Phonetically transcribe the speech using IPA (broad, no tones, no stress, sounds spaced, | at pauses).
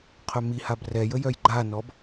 qʰ œ m i h a b r ɛ j ə j œ j ɡ͡ǃ a n ɔ b